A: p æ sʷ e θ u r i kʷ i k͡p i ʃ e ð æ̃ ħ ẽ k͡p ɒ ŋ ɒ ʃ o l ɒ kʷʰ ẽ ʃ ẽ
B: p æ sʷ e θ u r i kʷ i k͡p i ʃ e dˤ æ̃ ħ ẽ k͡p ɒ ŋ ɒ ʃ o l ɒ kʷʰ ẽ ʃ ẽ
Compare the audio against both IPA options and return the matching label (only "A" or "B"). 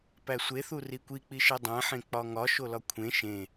B